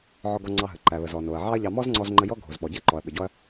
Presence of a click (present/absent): present